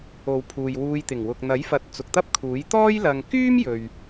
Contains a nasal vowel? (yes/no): no